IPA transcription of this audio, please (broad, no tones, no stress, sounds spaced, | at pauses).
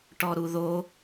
ʈ ɔ ɾ u ð o